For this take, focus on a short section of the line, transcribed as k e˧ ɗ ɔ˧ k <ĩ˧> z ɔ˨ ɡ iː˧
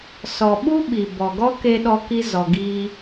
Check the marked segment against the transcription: incorrect: i˧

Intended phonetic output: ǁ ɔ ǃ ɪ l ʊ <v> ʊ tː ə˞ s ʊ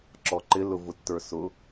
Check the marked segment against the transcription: correct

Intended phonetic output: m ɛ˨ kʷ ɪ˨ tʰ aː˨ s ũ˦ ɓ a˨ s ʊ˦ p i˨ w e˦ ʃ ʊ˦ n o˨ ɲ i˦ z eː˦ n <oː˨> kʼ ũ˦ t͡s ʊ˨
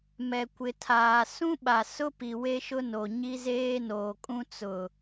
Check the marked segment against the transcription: correct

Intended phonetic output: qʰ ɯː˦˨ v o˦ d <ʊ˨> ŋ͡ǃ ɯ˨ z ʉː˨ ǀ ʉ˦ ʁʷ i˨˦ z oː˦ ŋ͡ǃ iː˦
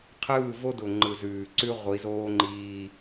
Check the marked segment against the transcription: correct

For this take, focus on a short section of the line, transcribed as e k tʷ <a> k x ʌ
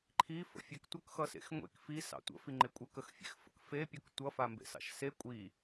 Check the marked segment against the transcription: incorrect: ʌ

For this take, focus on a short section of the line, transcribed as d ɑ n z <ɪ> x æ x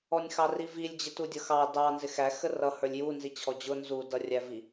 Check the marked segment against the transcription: correct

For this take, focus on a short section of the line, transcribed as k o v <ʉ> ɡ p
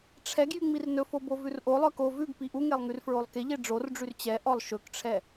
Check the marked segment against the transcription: correct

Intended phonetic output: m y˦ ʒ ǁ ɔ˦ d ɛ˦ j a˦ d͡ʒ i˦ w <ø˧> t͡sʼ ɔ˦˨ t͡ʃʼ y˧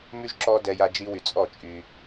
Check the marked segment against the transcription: incorrect: y˧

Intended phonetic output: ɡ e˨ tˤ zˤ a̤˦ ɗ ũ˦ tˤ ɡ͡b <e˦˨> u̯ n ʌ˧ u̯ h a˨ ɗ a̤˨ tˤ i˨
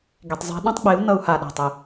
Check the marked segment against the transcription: incorrect: e˨˦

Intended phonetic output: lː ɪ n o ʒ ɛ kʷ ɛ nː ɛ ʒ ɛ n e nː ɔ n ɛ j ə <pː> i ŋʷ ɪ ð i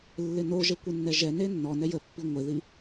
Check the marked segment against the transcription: correct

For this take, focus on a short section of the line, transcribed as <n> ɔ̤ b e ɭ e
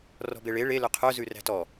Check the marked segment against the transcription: incorrect: r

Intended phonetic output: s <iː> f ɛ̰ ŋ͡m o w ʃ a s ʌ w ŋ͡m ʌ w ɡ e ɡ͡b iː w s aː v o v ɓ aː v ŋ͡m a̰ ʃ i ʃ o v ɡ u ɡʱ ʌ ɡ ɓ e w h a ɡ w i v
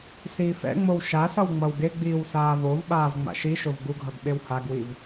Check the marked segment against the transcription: correct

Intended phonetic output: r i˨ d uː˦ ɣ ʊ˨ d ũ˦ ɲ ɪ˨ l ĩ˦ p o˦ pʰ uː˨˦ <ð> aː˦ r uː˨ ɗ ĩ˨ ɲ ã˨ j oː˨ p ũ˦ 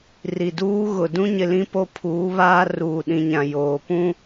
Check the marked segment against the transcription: incorrect: β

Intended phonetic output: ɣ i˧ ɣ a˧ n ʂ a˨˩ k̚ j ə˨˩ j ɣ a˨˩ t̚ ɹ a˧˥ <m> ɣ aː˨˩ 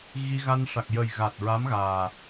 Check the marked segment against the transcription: correct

